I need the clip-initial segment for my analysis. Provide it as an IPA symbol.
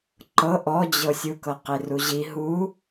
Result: ǃ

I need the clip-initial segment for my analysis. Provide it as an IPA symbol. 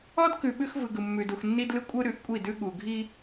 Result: ɔ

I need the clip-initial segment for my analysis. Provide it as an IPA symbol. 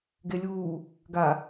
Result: ɡ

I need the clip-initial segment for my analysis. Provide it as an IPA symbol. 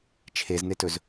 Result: t͡ʃʰ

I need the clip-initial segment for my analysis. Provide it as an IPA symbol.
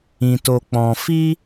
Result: ĩ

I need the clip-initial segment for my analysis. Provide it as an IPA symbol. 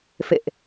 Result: f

